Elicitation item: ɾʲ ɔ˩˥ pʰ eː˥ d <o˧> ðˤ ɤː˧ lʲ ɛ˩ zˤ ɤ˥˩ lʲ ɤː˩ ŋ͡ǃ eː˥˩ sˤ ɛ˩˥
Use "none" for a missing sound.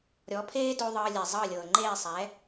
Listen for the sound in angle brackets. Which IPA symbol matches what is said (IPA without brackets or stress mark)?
o˧